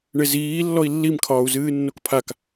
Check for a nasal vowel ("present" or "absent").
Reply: absent